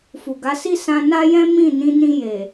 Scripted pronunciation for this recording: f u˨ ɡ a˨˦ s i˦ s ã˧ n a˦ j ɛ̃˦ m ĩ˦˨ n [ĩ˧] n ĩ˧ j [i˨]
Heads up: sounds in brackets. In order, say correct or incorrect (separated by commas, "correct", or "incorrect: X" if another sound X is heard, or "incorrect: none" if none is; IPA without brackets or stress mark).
correct, incorrect: e˨